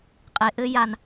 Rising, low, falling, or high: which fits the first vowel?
low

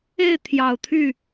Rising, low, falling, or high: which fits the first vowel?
falling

